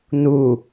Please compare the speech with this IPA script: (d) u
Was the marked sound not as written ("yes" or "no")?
yes